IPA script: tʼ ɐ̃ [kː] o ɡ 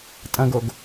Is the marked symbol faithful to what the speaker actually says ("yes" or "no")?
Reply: no